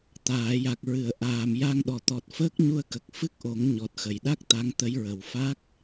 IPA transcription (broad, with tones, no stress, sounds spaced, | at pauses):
t̪ aː˨˩˨ j a˨˩ k̚ ɹ ɨ˨˩˨ ə̯ ʔ aː˨˩ m j a˧ ŋ ɗ ɔ˨˩˨ t̪ ɔ˨˩ t̚ f əː˦˥ k̚ ɲ u˧ ə̯ k ə˨˩ k̚ f ɨ˦˥ k̚ ʔ o˨˩˦ ŋ ɲ ɔ˨˩ t̚ x ə˨˩˨ j ɗ a˦˥ k̚ t̪ a˧˥ ŋ t̪ ə˧˥ j ɹ ə˨˩˨ w f a˦˥ k̚